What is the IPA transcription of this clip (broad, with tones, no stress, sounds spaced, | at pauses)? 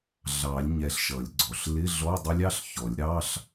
ɮ ɑ˨˩˦ lʲ ɲ ɛ˧˩ ɬ ʃ ʌ˨˩˦ lʲ ɡ͡ǀ ɔ˩ ɬ l ɪ˧˥˧ ɮ ɔ˧˥˧ dˤ ə˦˥ lʲ ɑ˧˥˧ ɬ ç ɔ˨˩˦ lʲ ɾ ɑ˧˥˧ ɬ